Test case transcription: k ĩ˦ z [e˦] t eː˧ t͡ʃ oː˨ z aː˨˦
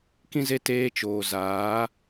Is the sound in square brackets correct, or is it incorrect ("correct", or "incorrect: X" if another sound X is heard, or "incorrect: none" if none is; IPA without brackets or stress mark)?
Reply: correct